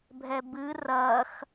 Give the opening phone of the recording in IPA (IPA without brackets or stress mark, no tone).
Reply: bʱ